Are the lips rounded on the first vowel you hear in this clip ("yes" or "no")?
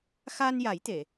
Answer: no